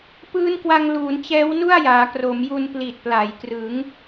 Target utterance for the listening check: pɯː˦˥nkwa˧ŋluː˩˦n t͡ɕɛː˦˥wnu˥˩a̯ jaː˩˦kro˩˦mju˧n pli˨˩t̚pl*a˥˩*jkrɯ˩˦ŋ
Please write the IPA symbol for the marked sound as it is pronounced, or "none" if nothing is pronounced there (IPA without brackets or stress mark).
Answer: a˩˦